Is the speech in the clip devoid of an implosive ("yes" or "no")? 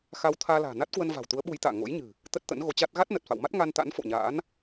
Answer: no